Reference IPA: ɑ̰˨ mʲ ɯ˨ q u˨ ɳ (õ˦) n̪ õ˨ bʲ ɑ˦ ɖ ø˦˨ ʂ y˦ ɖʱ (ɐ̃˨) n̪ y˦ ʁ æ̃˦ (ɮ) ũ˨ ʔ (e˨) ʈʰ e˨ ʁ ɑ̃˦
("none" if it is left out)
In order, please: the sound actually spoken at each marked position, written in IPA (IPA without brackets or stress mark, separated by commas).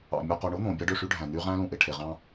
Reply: o˦, æ̃˨, l, e˨